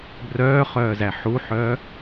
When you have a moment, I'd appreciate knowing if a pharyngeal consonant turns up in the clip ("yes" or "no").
yes